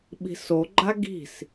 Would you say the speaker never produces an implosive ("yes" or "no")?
no